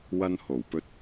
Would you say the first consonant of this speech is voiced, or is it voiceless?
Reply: voiced